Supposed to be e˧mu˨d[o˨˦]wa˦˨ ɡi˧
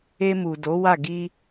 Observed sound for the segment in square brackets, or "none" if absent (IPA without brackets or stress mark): o˨˦